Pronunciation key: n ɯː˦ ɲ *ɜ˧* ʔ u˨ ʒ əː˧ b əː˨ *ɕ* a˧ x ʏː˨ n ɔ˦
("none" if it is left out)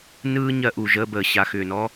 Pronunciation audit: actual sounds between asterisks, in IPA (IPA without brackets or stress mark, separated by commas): ɜ˧, ɕ